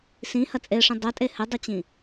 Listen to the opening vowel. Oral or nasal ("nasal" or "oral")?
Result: nasal